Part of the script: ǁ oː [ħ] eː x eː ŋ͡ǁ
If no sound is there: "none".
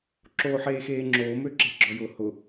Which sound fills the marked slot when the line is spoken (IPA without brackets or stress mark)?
ħ